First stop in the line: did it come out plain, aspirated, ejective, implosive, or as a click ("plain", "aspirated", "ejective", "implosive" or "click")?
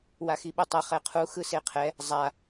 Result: implosive